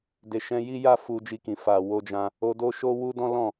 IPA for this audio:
de˨ʃɛ̃˧ji˦ja˦ fu˧d͡ʒi˧kĩ˨ fa˨wo˧d͡ʒã˧ | o˧do˦ ʃo˦wu˦dɔ̃˦ lɔ̃˦˨

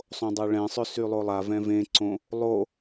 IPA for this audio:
sˤõdˤaɭɛ̃sˤø sylˠolˠavɛ̃ vẽǀõ | lˠo

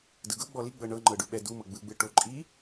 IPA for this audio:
dɯɡɤ ɡ͡bɔli ɡ͡bɤɳɤŋ͡ǃɤɖu ɓɛdumɤ ɡ͡bɯɡ͡bɯ ʈoǃʼi

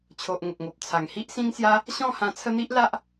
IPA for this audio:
t͡ɕʰo˨ʔ ŋə˨k̚ŋo˨p̚ t͡sʰa˨˩ŋhi˦ʔ sĩ˦ŋsja˦ | ɕɔ̃˥˧hã˧ t͡sʰə˦n̪i˦ʔ la˦ʔ

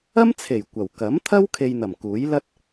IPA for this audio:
ɐ˥mt͡sʰe˨˩j kʷɐ˨˩w kɐ˨˥mt̪ʰɐ˥w kʰe˧jn̪ɐ˨˩mkuː˨˥jlɐ˥t̚

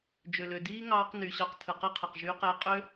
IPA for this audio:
d͡ʒø˨lø˨diː˦ ŋɑː˧qny˨ɕɑ˧q tʰɯ˨qi˦qʰɯ˨q ʒy˧qe˧qʼø˦

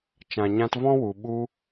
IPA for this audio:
t͡ʃã˨ɲã˧tvɔ̃˦wu˨ ɓu˧

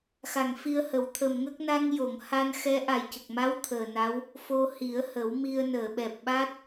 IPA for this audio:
xa˨˩ŋfi˧ə̯hə˨˩˦w t̪ʰə˨˩mŋə˦˥k̚ na˧ŋjo˨˩˨ŋ ha˧nxɛ˧˥ ʔa˨˩jcə˨˩k̚ma˧˥w t̪ʰəː˨˩na˧˥w | fo˧hi˨˩˦ə̯hə˨˩˦wmi˧ə̯ nəː˨˩˨ɓɛ˨˩p̚ɓa˦˥t̚

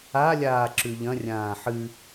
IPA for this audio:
alʲaː ǁʉʎɐ̃rʲãː ħɨ

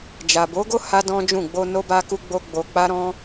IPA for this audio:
d͡ʒa˨bo˨˦ɡo˦ ha˦dɔ̃˦d͡ʒũ˦˨ ɡ͡bo˧ no˦ba˦ku˦ɡ͡bo˦ ɡ͡bo˧ k͡pa˦ɾɔ̃˦

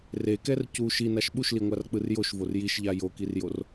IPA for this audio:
rekɛr cu ʃinaʃ ɓuʃliŋʷark͡pɯr joʃvor jiʃʎa jokirjor

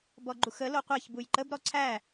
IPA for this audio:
bɔɡ͡ǃuxə loqʷæçbuj ǃəbɾɔ ǀʰæ

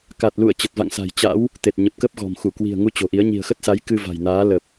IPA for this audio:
ka˨˩t̚lṵ˧˨ə̯ t͡ɕə˨˩t̚va̰˧˨ŋsa̤˨˩j t͡ɕa̰˧˥w | t̪e˨˩t̚ɲə˨˩p̚ kə˦˥p̚ɣɔ̤˨˩mxu˧˩ kwi̤˨˩ə̯ŋu˧ t͡ɕo̤˨˩ʔi˨˦ə̯ ɲi̤˨˩ə̯xə˦˥t̚sa˨˦j kɨ˧va̤˨˩jnaː˨˦ lə˨˩p̚

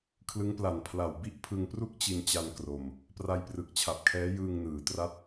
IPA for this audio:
kʰlɯ˦˥ŋpla˨˩n pʰla˨˩wbi˥˩ʔ pʰɯ˧ŋpru˥˩k̚ t͡ɕi˧nt͡ɕa˧n kro˧m | pra˧jprɯ˨˩k̚t͡ɕʰa˨˩p̚kʰɛː˦˥ jɯː˧ŋnɯː˩˦ tra˥˩t̚

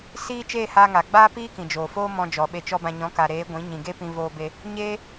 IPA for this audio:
siː˦ t͡ʃeː˦˨haː˧ŋa˨ɡ͡baː˦ piː˦kĩ˨d͡ʒoː˨foː˦ mɔ̃˧ d͡ʒɔ˨ɓe˧t͡ʃɔ˦bã˧ ɲɔ̃˨˦ka˨ɾeː˨˦ ɡʷĩ˨˦ ɲĩ˨ɡe˦pĩ˧ voː˧be˧ | ɲeː˦

